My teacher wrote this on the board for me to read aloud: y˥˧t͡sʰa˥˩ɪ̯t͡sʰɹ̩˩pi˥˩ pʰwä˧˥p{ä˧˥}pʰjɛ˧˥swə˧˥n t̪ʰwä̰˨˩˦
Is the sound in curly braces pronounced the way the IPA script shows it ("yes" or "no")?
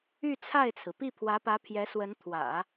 yes